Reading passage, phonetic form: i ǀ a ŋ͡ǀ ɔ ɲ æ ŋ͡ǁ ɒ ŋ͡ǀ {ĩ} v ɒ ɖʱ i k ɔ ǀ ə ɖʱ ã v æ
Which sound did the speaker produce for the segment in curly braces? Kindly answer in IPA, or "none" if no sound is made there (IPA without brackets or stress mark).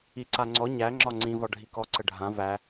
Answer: ĩ